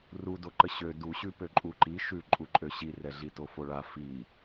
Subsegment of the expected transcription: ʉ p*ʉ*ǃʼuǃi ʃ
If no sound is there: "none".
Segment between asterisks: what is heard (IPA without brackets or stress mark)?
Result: ø